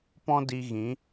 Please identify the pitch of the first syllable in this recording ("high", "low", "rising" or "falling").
high